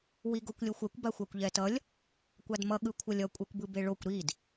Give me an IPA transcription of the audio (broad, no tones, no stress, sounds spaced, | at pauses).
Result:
w i ɡ o kʷ lʲ o xʷ ɛ kʷ b a xʷ a kʷ ʎ ɛ t ʌ lʲ | kʷ a d m ʌ ɠ ɯ kʷʰ ʌ lʲ ʌ kʷʼ ɛ kʷ b ɯ b e ɭ o kʷ ɾ i d